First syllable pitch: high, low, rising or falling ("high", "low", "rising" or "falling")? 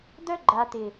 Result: high